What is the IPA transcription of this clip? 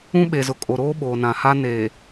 ũ˦ɓe˨zʊ˨ kʼo˨ɾoː˦ ɓoː˨nã˨ha˦ neː˨

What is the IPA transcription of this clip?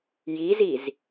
jiziz

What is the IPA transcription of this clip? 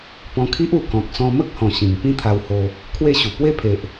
pɔ̃˧kʰi˦ʔ u˨˩ kɔ̃˨k̚ sɔ̃˧mə˦k̚hɔ̃˨˩ ɕĩ˨˩ŋ pĩ˥˧t̪ʰa˧who˧ | kʰwe˥˧ɕu˨˩ pwe˦pʰe˨ʔ

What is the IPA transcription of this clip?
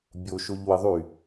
bʲoʃoʎwɪðˤy

